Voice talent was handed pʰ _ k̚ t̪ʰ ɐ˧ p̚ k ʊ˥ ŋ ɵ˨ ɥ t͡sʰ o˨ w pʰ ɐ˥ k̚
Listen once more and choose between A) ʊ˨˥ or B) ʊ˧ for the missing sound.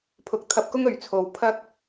A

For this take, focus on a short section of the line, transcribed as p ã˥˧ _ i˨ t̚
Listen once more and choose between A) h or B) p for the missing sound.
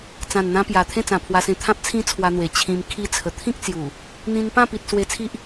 B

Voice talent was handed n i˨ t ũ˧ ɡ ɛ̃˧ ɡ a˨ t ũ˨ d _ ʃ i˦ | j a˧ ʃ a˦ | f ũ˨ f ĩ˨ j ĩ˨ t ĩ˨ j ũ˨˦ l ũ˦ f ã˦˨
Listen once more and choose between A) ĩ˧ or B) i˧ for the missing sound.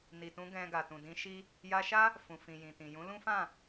A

